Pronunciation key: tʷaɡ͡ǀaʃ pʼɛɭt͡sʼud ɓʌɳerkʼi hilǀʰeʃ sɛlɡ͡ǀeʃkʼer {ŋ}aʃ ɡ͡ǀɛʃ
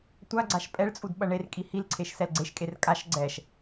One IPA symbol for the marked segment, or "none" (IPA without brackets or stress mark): kʼ